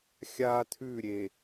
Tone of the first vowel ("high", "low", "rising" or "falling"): high